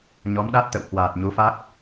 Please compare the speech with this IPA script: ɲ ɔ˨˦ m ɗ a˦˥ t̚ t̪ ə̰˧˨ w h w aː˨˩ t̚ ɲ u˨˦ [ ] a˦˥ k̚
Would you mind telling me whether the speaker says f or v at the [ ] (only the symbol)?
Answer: f